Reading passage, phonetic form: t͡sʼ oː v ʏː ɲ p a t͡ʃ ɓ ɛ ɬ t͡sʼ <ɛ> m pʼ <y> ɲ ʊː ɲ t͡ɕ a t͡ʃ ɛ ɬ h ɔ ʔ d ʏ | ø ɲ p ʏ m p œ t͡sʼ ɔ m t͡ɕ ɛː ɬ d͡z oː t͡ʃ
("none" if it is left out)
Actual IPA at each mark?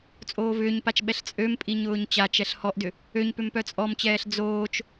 ø, i

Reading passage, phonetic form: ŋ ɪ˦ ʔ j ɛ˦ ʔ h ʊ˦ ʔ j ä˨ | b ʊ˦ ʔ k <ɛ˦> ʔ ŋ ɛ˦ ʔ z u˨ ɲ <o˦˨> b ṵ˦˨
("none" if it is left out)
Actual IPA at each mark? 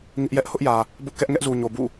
ɛ˦, o˨

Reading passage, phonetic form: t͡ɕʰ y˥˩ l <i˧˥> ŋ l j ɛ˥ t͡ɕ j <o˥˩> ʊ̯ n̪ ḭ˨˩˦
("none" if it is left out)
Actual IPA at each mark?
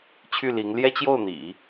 i˧˥, o˥˩

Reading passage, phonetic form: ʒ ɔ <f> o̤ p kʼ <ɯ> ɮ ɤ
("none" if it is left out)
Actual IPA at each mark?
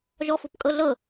f, ɤ

